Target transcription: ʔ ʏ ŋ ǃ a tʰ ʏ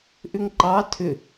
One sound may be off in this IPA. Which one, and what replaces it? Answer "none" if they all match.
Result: a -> ɑ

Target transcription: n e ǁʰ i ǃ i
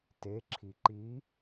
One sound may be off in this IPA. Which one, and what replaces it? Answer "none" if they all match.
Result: n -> t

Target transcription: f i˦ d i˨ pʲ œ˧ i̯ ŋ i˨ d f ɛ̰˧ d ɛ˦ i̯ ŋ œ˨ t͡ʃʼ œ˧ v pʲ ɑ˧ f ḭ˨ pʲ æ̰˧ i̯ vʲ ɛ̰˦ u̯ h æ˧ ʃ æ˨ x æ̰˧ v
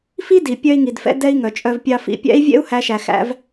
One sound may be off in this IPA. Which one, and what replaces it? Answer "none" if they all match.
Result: none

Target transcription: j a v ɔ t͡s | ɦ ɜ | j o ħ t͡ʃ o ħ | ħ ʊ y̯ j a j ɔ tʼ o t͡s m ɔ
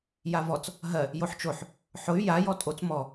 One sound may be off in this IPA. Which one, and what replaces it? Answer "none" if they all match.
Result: none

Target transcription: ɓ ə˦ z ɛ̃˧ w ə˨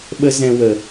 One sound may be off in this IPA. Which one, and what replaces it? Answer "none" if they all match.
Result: none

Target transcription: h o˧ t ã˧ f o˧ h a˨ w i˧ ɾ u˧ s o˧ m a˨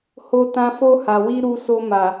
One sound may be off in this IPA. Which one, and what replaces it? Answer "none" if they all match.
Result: none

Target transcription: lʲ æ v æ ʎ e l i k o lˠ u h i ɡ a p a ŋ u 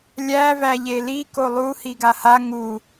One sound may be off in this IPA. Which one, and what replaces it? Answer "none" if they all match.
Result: p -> h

